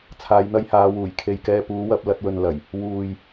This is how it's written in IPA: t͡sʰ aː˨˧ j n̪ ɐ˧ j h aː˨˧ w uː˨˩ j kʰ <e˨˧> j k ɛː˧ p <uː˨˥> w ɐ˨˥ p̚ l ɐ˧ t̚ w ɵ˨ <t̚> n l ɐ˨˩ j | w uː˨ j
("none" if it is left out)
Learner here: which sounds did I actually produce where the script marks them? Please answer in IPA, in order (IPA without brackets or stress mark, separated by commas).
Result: e˨, uː˨˥, none